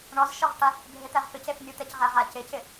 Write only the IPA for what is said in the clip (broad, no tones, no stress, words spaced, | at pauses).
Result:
ɳɔzʃɔʁʈa | bʱɪt̪ɛʁpɪcef nʲut̪ɛcʁɛʁa cɪcɪ